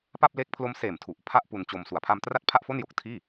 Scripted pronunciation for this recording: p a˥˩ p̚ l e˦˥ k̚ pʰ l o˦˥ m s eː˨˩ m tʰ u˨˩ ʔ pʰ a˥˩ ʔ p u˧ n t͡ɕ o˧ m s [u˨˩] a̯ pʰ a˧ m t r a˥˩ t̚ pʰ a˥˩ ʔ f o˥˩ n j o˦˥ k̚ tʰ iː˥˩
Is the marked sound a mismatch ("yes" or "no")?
no